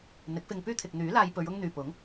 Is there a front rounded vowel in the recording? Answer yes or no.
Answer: yes